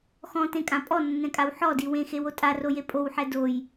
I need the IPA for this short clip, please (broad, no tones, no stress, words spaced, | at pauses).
xɔ̃tẽkʼã pʼɔnːɛ̃kʼaw ħɔdi wẽxewo tʼaroje pʼowħɛ doj